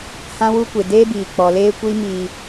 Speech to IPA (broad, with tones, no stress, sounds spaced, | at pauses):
h ã˦ w u˦ kʷ e˨ d eː˦ b iː˨ k͡p ɔ˨ l eː˦ kʷ i˦ m iː˦